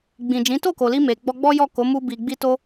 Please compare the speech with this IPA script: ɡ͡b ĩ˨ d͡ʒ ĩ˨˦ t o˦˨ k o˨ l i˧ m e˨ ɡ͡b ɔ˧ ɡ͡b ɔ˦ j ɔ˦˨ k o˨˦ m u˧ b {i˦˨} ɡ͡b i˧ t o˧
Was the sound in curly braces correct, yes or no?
no